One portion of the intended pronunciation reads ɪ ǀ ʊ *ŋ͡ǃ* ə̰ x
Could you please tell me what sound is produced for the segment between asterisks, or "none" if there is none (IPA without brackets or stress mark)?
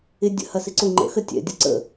ŋ͡ǃ